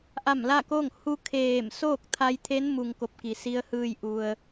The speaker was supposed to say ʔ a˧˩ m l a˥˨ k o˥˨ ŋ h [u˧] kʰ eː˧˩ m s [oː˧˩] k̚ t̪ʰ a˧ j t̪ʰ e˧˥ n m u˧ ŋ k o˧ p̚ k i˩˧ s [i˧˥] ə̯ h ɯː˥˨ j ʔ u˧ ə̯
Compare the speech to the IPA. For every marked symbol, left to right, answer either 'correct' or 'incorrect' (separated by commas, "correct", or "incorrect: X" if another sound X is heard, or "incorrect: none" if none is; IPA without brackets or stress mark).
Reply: correct, incorrect: oː˥˨, correct